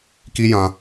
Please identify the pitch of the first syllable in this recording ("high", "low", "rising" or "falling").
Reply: high